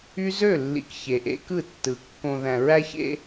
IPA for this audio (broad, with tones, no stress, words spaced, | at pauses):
y˦ zø˦˨lːḭ˨k çe˨ʔḛ˦kɯ˦˨tːɯ˨ kːõ˨ðæ̃˨ ɹæ˦çḛ˦